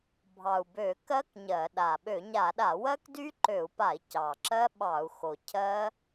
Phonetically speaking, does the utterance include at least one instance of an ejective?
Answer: no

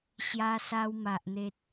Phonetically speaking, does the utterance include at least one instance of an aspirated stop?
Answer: no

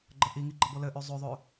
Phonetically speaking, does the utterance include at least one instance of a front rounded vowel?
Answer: yes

